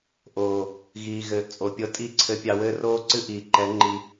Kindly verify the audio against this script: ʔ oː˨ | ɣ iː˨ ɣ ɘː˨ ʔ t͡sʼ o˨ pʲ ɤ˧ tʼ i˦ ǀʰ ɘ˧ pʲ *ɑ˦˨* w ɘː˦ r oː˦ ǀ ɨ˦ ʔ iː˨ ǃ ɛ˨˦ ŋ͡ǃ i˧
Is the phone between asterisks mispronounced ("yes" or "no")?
yes